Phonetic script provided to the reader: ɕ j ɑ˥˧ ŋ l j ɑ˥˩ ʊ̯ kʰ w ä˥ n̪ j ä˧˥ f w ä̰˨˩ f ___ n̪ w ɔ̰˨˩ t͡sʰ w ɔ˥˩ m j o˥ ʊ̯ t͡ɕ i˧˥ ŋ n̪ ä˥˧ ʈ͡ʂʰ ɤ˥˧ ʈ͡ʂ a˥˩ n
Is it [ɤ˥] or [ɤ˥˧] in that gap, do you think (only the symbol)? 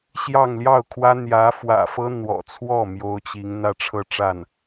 ɤ˥